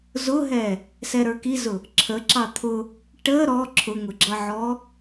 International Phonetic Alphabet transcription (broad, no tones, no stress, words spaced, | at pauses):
zʊɦɛ | sɛɾə˞kizʊ | ǁʰə ǁɑt̪ʰʊ | ʈə ɾɔ ǁʰʊŋʊɡ͡ǁʌʕɔ